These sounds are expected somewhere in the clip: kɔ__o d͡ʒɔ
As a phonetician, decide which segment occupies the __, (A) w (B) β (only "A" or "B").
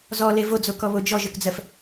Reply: B